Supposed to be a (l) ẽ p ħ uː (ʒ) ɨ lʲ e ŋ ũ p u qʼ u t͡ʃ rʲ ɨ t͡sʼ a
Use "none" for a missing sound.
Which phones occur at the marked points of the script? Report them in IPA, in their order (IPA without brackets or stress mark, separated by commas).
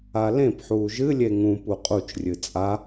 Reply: l, ʒ